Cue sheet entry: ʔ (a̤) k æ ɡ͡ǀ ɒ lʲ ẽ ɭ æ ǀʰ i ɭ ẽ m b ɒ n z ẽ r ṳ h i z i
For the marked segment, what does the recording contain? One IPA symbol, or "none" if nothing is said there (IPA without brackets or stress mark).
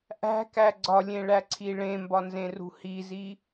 æ̤